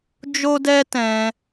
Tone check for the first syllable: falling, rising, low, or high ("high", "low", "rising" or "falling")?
high